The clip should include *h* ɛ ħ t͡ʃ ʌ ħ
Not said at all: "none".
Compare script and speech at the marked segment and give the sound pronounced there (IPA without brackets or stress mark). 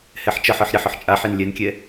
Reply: h